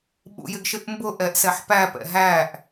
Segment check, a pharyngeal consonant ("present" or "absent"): present